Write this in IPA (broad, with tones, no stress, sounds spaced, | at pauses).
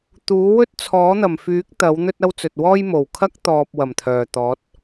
t̪ uː˨˥ w ɵ˥ t̚ t͡sʰ ɔː˨˥ n̪ ɐ˨˩ m f yː˨˥ k̚ t̪ ɐ˨˥ w n̪ ɵ˥ t̚ ɐ˥ w t͡s ɵ˨ t̚ w ɔː˥ j m o˨˩ w kʰ ɐ˥ k̚ t̪ ɔː˨ p̚ w ɐ˨˩ m t̪ʰ œː˨˩ t̪ ɔː˨˥ t̚